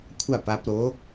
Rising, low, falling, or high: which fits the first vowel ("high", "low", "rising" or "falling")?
falling